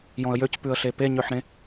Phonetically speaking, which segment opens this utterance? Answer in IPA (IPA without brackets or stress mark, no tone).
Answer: j